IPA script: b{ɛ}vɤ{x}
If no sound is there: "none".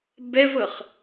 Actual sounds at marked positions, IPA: ɛ, χ

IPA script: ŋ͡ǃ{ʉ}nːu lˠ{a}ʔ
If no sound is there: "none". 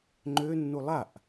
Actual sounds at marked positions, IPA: ø, a

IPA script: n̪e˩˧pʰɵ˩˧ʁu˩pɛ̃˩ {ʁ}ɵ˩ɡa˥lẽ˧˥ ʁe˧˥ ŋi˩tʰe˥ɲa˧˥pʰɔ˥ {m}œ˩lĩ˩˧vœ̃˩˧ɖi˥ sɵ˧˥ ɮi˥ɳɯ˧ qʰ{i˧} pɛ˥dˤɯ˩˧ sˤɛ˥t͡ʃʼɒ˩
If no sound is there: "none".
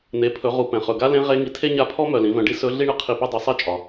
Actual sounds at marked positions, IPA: χ, m, i˧

